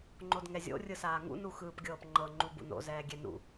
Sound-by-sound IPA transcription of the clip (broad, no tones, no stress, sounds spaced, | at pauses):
ŋ͡ǃ o d ŋ ɛ zʲ o̰ rʲ ɯ s aː ŋ ṵ n u x ɯː p ɡʲ ɤː p ŋ͡ǃ ɤ ŋ͡ǃ u b ṵ n o̰ z ɛː ɡʲ ɛ n ṵ